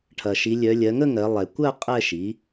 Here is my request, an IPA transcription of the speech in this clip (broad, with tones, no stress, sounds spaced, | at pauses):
ʈʰ ɐ˩ ʃ i˩˧ lʲ œ˩˧ lʲ ɜ˩˧ ŋ ə˥˧ ŋ ɜ˩˧ lˠ ɛ˩ kʷ ɜ˥˧ qʼ ɛ˥˧ ʃ i˩˥